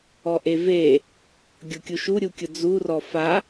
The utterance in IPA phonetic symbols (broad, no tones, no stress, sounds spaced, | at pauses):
ɔ ʔ e v e | ɡʲ o kʲ u ʃ u ɾʲ u kʲ ʊ d͡z u r ɔ f a